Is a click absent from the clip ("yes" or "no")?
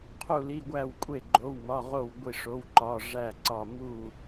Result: no